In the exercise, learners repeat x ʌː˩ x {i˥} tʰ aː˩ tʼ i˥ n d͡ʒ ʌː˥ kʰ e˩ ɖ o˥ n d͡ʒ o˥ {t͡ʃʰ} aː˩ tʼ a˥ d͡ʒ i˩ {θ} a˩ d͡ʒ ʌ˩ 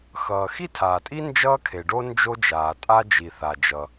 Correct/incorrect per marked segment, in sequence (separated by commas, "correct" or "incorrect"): correct, incorrect, correct